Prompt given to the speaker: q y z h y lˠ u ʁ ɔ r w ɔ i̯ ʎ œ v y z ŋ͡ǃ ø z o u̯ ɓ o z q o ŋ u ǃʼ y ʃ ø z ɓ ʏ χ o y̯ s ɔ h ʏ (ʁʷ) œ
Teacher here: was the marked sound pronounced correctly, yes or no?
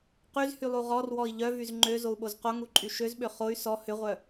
yes